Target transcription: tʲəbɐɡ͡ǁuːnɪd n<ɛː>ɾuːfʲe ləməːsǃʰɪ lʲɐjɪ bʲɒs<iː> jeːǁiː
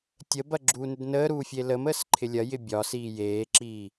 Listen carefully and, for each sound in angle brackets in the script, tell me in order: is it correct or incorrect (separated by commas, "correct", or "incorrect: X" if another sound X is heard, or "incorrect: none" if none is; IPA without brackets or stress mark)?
incorrect: əː, correct